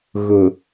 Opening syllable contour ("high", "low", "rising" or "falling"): low